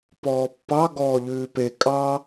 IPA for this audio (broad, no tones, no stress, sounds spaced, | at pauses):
p ɔː pː ɑ ɡ ɔː ʎ ʉː p e kʼ ɑ